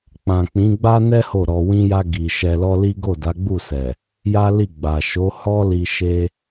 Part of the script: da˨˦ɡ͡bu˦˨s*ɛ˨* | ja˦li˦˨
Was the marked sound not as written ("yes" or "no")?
no